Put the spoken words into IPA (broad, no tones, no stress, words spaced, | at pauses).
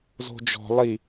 zo̤d͡ʒɔ̤ lˠi